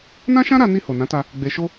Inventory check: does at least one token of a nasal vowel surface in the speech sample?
yes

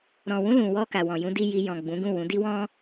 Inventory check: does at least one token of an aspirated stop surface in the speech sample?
no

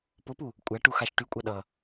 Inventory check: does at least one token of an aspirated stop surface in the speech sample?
no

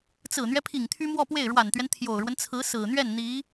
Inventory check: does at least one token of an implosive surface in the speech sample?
no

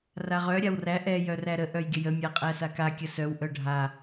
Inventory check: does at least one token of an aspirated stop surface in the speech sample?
no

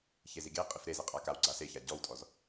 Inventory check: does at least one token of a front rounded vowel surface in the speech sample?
no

